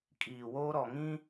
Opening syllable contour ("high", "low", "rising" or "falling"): low